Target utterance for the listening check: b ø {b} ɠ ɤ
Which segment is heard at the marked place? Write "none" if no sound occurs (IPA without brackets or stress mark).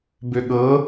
none